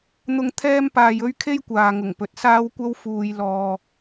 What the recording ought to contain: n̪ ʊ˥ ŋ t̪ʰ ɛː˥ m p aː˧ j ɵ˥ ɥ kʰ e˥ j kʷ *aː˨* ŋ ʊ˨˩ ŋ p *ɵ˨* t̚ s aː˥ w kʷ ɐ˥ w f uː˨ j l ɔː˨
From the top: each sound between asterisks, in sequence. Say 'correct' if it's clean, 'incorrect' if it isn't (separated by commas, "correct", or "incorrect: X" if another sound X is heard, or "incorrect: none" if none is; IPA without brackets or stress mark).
correct, correct